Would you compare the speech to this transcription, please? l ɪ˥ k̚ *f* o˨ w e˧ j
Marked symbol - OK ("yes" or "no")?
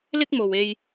no